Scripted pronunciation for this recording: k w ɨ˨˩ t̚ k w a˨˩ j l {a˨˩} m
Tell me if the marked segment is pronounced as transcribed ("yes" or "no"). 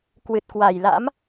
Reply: no